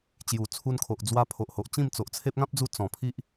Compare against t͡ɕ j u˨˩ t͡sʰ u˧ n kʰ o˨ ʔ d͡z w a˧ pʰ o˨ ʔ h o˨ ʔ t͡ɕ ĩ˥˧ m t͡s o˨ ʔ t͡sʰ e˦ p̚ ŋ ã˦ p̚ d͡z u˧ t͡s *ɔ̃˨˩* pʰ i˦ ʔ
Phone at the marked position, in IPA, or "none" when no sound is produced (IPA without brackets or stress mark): ɔ̃˨˩